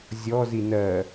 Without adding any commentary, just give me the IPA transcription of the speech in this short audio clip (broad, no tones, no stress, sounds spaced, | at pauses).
zʲ ɔ z i n ɜ